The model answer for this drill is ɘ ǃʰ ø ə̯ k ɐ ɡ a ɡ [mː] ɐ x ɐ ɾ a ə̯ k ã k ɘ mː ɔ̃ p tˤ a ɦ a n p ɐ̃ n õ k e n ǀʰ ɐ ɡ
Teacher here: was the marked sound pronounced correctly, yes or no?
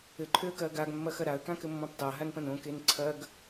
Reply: yes